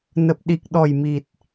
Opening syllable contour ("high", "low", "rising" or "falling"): low